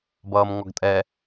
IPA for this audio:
b ʌː m ŋ ɔ ɡ tʼ ɛ

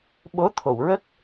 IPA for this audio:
ɓ o˧˥ t̪ʰ o˨˩˨ w ɹ ə˦˥ k̚

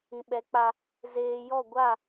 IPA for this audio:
ĩ˨ ɓ ɛ˨˦ k͡p a˧ | z eː˨ j ɔ˦˨ ɡʷ a˦˨

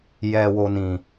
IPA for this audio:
j ɛ˨ w o˨ n ĩ˨

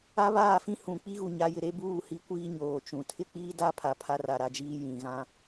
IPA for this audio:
a˦ β aː˦˨ f ĩ˦ h ũ˨ k͡p i˦ ɣ u˨ ɲ a˨˦ j ɪ˨ ɾ e˦ b uː˦˨ h i˦ kʷ iː˦ ɲ oː˨ t͡ʃ ũ˨ tʰ ɪ˦ k͡p iː˦ d a˦ pʰ a˨ pʰ a˦ r a˨ ɾ a˦ d͡ʒ iː˦ j ĩ˨ ɣ ã˦

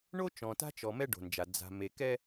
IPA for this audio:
ɳ o˦ t͡ʃ ɔ̃˨ t a̤˦ t͡ʃ ɔ˨ m ɛ˦ ɖ o̤˨ n d͡ʒ a˨ d͡z a̤˨ m e˨ k ɛ˦

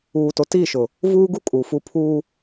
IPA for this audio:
uː˨ t o˨ t iː˦˨ ʃ ʊ˨ | v uː˦ ɡ u˦ kʼ u˨ f u˦ pʰ uː˦

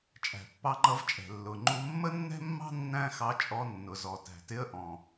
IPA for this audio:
t͡ʃʼ æ̤˩ pː ɑ˧ ŋ͡ǃ ʌ˧ v t͡ʃʼ ɛ̤˩ lː ʊ˩ ŋ͡ǃ u˧ mː ə˥ nː ɛ̤˥ mː ɑ̤˥ nː æ̃˥ x ɑ˧ t͡ʃʼ ɔ˧ nː ʊ˩ z ɔ˩ t æ̤˩ t ɪ˧ ə̯ ʔ ɔ̃˩

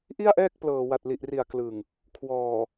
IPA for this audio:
ʔ i˥˩ a̯ ʔ ɛː˥˩ k̚ p l ɤː˨˩ w a˨˩ t̚ l i˨˩ ʔ r i˨˩ a̯ k l ɯ˨˩ ŋ | kʰ w ɔː˨˩

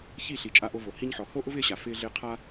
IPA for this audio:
ç i˦˨ ɬ i˨ t͡ʃʼ a˧ ʔ o˧ v o˨ h i˧ ɲ ħ ɔ˨ h o˦ ʔ ʊ˦ v ɪː˦ ɕ a˨ f ɪː˦ ɮ ɪː˦ qʰ a˦

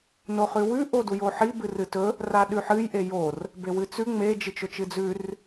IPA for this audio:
n o χ ʉ w ʉ ʔ o d u j o ħ i b ɨ r ɨ t ɵ | r a ɗ ʉ ħ ɨ j ʔ e j o r | b e w ɨ t͡s ʉ ŋ͡m e d͡ʒ ɨ t͡ʃ ɵ t͡ʃ ɨ d͡z ʉ r

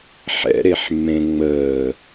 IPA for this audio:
ħ ɛ̰ ɾ e ħ mː ẽ ŋ͡m əː

